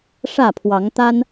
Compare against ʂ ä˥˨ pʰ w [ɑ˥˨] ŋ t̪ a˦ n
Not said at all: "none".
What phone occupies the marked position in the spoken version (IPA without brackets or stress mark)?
ɑ˨˦